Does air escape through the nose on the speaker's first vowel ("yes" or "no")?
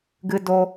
no